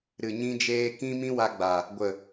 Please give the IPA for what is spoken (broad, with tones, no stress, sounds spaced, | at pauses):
ɾ ɨ˨ ɲ ĩ˧ d͡ʒ eː˧ k ĩ˦ m ĩ˦ w a˧ ɡ͡b a˨ | ɡʷ ə˨